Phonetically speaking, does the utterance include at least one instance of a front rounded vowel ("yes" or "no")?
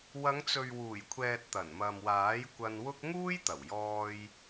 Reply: no